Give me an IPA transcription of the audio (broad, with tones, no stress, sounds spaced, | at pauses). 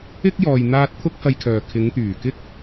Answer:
ɪ˥ k̚ j ɔː˨ j n̪ aː˧ t̚ t̪ʰ ʊ˥ k̚ h ɐ˧ j kʰ œː˨ kʰ ɪ˨˧ ŋ t̪ yː˨˩ k ɪ˥ k̚